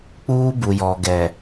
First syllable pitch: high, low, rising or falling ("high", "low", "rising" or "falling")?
high